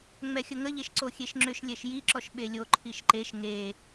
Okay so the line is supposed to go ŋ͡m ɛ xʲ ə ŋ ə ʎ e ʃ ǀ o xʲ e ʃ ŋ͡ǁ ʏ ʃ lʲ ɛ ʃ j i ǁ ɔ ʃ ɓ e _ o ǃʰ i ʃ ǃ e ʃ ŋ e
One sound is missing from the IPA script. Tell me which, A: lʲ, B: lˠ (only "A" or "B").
A